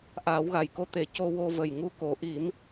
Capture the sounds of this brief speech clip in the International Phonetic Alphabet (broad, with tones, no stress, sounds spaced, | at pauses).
ʔ aː˨˩˦ w ɣ a˨˩ j k o˧ t̪ e˨˩˦ c o˧ w o˧ v ə˨˩ j ŋ u˧ k o˨˩˦ ʔ i˨˩˦ m